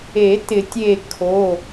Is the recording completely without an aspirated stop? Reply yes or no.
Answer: no